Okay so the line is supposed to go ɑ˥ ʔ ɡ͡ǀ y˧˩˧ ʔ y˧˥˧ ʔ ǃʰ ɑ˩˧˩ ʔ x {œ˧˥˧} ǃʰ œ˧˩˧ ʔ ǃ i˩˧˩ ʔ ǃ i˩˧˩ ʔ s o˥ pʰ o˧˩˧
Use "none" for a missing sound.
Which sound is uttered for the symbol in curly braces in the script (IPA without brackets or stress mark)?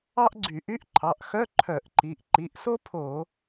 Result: œ˧˥˧